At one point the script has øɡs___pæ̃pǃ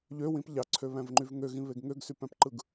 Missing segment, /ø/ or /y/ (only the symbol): y